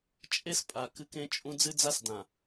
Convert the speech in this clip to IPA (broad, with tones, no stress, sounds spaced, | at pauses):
t͡ʃʼ e˦ s pʼ a˨ k ɨ˦ k ẽ˦ t͡ʃʼ ũ˦ d͡z ɨ˦ d͡z a˦ s d ã˨